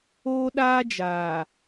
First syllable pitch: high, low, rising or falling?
high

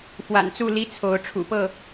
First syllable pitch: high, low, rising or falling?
low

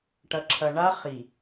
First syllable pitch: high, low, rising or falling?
low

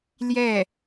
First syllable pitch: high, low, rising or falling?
falling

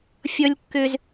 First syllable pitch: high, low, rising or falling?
high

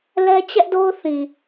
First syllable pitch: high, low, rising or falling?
high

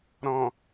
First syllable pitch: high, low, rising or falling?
low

